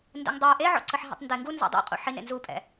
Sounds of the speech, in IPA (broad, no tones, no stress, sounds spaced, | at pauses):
n d ɛ̰ ŋ dˤ ə˞ ʔ e ʕ ɔ̰ ǀ ə ħ ɦ ḭ tˤ n d e ŋ ɡ u n z ɔ̰ dˤ ḭ qʼ ṵ ħ i n ḛ n z u pʼ ɛ̰